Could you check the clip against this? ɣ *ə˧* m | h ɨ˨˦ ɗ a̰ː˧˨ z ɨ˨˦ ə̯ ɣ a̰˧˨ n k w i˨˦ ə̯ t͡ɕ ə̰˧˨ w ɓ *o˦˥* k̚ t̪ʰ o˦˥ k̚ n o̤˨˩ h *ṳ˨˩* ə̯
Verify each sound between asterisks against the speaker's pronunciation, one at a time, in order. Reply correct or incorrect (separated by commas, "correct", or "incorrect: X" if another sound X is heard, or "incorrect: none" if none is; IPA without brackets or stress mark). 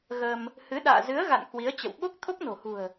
correct, correct, correct